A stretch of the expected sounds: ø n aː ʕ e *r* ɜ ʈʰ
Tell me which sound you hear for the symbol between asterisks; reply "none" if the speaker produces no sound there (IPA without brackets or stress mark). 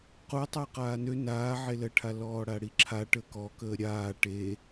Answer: l